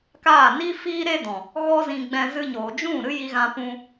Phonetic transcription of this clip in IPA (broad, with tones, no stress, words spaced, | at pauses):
kaː˦˨ ni˦ fiː˦ɾe˦dɔ̃˨ | ɣɔ˦ zĩ˧ɡ͡bɛ̃˧ zɨ˧ ɲoː˨d͡ʒũ˦˨ ɾɨ˦ji˧ɣã˧pũ˧